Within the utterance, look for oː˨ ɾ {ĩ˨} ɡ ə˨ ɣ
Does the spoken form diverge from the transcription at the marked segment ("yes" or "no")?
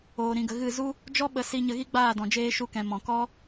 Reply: no